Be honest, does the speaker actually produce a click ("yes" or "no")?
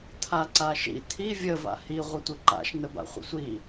yes